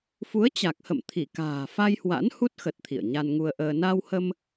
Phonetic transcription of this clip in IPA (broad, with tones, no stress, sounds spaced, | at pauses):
f u˨˦ ə̯ t͡ɕ a˨˩ k̚ h ə̰˧˨ m t̪ʰ i˧˩ k a̤ː˨˩ f a˧ j h w a̰˧˥ n h u˦˥ t̚ x ə˨˩ t̚ t̪ʰ ḭ˧˨ ə̯ ɲ a˧ n ŋ u˧ ə̯ ʔ əː˧ n a˧ w h ə˧ m